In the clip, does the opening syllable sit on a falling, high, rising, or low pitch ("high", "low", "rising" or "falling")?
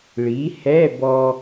rising